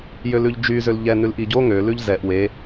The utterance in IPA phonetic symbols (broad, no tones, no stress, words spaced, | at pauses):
jølʉʎd͡ʒy zølʎɛ nʉlʔiɟo ŋø lʉʎzɛʔ we